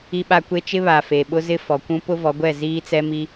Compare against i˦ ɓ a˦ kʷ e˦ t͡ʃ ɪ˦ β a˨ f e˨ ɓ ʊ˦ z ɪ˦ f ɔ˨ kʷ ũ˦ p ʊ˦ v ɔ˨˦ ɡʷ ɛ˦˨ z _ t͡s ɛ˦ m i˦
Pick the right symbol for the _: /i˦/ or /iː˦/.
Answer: iː˦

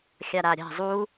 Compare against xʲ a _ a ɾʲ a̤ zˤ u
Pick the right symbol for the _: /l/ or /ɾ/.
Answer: ɾ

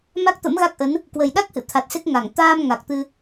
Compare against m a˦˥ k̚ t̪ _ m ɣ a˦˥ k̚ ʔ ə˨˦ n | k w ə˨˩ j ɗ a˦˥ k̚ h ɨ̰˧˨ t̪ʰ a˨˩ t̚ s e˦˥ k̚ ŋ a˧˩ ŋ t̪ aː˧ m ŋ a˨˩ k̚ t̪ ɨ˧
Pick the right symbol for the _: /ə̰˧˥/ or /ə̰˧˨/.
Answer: ə̰˧˥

